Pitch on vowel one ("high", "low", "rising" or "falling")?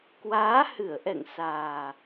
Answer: rising